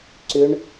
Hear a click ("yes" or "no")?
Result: yes